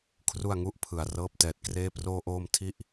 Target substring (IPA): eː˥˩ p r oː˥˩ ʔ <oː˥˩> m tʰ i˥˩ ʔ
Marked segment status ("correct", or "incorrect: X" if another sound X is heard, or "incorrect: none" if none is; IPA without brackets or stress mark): correct